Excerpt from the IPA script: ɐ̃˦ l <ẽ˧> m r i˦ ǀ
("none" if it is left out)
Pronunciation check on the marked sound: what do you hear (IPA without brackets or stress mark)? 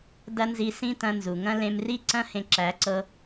ẽ˧